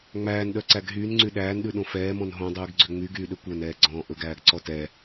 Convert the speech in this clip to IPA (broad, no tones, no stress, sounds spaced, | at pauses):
ŋ͡m æː n ɗ œ ǀ æ ɡ ɦ yː n ŋ͡ǀ y ɗ æː n ɗ ʉ ɗ õ f ɛː m ɔ̃ n ɦ õ dˤ ʉː ɡ ɡ͡ǀ ø ŋ͡m y ɡ yː ɗ ø kʷ œ n ɛː ɡ͡ǀ ɔ̃ː ʔ ɵ ɡ æː ɡ ǀ ɔ t ɛ